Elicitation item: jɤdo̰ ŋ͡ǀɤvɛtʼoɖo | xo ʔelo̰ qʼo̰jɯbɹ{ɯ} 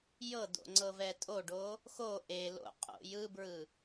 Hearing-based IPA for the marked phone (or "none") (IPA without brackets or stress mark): ɯ